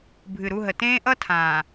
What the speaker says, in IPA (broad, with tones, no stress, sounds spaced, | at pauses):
bʱ ɨ˨ ɾ u˦˨ ɦ ə˨ t ẽː˦ ʔ ʌ˦ tʰ ãː˨